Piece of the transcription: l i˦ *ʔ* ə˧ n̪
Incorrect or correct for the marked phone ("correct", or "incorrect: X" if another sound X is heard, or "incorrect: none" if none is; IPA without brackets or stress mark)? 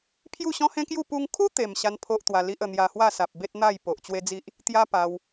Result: correct